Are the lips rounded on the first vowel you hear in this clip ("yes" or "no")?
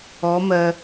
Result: yes